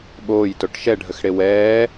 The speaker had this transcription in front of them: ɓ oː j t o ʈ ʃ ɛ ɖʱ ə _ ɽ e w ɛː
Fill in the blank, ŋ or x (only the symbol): x